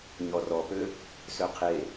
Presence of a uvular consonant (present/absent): present